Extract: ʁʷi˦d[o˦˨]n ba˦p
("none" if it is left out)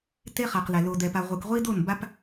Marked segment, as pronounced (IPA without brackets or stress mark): o˦˨